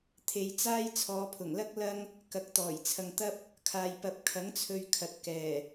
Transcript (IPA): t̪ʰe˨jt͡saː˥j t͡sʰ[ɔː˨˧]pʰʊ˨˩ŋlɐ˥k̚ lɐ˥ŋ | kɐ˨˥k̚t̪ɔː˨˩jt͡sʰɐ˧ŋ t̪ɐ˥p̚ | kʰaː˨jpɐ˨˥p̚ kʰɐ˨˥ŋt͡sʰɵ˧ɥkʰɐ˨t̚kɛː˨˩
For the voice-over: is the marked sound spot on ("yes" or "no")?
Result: yes